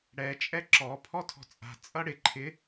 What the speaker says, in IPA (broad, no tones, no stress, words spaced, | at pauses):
ɽɛ t͡ʃʼɛǁɔ pʰɔtʰɔ̤t͡sʼa̤ t͡sʼʌɽɪ ǃʰɪ